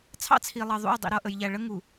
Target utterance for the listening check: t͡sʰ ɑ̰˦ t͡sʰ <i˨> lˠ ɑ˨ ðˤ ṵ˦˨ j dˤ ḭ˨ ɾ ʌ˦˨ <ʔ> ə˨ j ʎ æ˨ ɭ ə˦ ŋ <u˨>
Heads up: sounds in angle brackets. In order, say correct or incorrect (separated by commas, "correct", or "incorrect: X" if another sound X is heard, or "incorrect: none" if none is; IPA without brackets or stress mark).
correct, correct, correct